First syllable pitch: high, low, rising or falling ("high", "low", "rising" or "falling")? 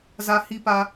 high